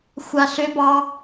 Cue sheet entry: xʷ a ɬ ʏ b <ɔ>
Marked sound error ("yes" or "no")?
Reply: yes